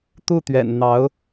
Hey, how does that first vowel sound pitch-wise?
falling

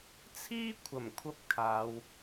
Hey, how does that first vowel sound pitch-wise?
high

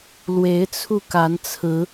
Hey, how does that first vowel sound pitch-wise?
rising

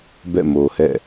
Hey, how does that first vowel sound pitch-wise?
falling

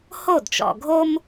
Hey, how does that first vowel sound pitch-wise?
falling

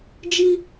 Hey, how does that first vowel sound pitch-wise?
high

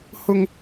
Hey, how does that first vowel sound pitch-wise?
high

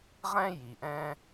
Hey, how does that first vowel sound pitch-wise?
high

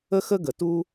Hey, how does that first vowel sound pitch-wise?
high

